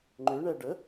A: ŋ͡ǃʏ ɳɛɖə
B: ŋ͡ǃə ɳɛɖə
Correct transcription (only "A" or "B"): A